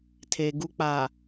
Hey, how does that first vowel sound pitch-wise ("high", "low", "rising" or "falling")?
low